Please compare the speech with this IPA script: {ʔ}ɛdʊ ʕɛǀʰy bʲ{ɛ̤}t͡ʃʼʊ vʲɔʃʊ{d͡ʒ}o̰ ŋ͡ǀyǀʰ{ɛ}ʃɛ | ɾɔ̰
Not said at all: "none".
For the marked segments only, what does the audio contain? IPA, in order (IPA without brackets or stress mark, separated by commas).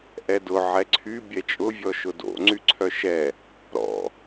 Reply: ʔ, ɛ, d, œ